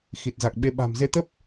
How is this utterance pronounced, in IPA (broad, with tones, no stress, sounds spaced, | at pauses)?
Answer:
x i˨˩ t̚ z a˨˩ k̚ ɓ e˧ ɓ a̤˨˩ m z e˧ t̪ ə˦˥ p̚